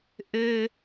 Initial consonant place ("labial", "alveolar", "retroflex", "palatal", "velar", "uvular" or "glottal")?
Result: glottal